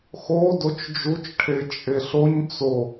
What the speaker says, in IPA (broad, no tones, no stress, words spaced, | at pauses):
xo dot͡ʃd͡ʒut͡ʃ ʈʰet͡ʃʼeɬoɲ t͡so